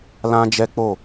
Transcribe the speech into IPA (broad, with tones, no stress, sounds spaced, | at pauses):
l ã˦ d͡ʒ ɛ˦ k͡p o˦˨